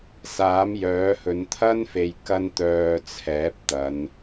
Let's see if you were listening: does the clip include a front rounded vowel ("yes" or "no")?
yes